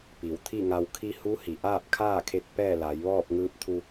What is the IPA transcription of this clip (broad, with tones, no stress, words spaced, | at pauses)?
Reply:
pi˩wt̪ʰi˥˨ŋa˧w kʰi˧ hu˧˥hi˩ ʔaː˥˨p̚kʰaː˥˨kʰe˧t̚ pɛː˥˨la˩˧j ʋɔː˥˨p̚ŋɯː˧˥p̚t̪ʰu˧